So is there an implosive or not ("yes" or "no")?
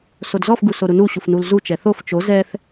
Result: no